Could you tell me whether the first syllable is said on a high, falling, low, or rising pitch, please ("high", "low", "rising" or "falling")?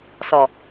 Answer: low